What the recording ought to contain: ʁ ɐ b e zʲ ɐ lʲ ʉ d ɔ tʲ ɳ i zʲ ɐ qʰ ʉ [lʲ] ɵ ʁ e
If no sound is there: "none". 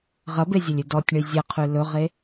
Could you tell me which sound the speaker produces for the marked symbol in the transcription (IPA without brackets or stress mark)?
l